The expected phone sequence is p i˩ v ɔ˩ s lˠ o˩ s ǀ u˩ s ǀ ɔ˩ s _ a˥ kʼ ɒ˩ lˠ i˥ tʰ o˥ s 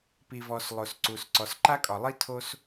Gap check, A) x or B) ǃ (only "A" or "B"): B